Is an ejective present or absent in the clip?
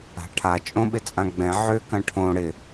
present